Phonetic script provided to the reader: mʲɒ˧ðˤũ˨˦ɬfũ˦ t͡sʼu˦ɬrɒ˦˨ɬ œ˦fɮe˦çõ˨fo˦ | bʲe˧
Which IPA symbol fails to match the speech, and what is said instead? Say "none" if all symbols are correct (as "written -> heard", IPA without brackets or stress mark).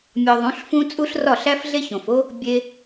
œ˦ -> æ˦